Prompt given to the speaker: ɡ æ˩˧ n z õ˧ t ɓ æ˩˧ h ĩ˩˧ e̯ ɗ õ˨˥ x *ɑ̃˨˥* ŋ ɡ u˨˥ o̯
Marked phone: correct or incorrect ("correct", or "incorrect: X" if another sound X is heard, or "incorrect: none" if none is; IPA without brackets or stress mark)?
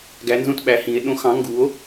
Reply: correct